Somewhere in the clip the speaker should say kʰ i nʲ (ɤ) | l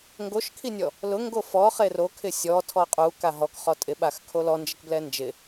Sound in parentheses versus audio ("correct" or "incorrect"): incorrect